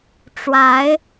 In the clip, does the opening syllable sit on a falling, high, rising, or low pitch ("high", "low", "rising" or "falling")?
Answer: rising